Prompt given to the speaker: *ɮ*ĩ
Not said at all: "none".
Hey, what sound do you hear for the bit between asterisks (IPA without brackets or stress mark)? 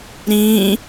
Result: ɾ